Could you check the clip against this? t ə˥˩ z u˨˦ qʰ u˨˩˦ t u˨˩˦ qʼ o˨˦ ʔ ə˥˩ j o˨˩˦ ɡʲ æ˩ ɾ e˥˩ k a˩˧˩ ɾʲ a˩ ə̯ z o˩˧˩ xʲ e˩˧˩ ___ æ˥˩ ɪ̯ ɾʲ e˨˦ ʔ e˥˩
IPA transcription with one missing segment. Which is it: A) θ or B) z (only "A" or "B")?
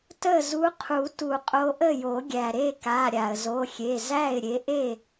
B